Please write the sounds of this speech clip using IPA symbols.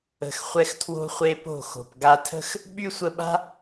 ə̤˨ x χʷ ɛ˧ x tʰ w o̤˧ χʷ e˧ p o̤˦˨ x o̤˨ p ɡ a˧ tʰ ə̤˦ x | ɓ y˦ sʷ ə˧ ɓ a̤˦

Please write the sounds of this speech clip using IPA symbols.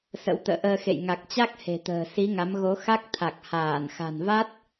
s ə̰˧˥ w t̪ ə̰ː˧˨ ʔ əː˧ x ḛ˧˨ j ŋ a˨˩ k̚ t͡ɕ a˦˥ k̚ h e̤˨˩ t̪ ə̤ː˨˩ s i˨˦ ŋ a˨˦ m ɣ o˨˦ x a˦˥ k̚ t̪ʰ a˨˩ k̚ h aː˧˩ n x a̤˨˩ n v a˦˥ t̚

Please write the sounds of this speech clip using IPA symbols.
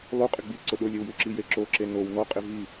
lˠ u qʼ ɪ ɡ͡b i ǀ ʊ ɗ ʊ lʲ e w j u ǁ i j e ǁ o ǁ e n o w n ɔ qʼ ɪ v i

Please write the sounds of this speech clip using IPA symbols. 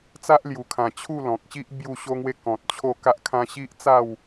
t͡s a˦ ʔ l j u˨˩ kʰ ã˨˩ t͡ɕʰ u˥˧ l ɔ̃˨ k̚ ɕ i˦ ʔ b j u˥˧ ɕ o˦ ŋ w e˦ k ɔ̃˨ t̚ t͡ɕʰ o˥˧ k a˦ ʔ kʰ ã˦ ɕ i˦ ʔ t͡s a˥˧ w

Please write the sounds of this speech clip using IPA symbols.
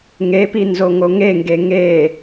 ŋ e p i n z o ŋ o ŋ e ŋ ɡ e ŋ e

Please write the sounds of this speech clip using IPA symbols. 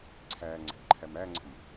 ǀʰ æː ŋ͡ǀ æ̤ ʔ ǃʰ æ m æ ŋ͡ǀ ə̤ m

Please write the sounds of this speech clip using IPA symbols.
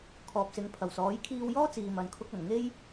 kʰ ɔː˨ p̚ s ɪ˨˧ ŋ pʰ ɐ˨˩ w s ɔː˨˥ j kʰ iː˧ w j ɔː˥ t͡s iː˨ m ɐ˨ n kʰ ʊ˧ k̚ ɐ˨˩ n ŋ e˧ j

